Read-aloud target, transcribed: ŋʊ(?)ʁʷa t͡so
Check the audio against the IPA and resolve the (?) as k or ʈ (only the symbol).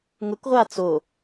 k